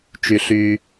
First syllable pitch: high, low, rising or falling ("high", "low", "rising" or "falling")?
low